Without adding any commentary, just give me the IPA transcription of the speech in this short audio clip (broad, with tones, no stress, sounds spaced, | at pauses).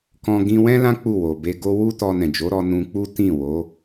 k ɔ̃˧ ɡ ĩ˧ w ɛ̃˦ l ã˦ k͡p u˦˨ w o˨ b e˧ ɡ o˧ w u˦ t ɔ˧ n ɛ̃˨ d͡ʒ o˨˦ ɾ ɔ˧ n ũ˧ k͡p u˦ t ĩ˦˨ w o˨˦